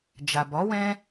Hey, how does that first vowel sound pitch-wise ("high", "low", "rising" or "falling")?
low